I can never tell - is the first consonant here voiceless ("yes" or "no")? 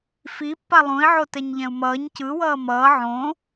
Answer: yes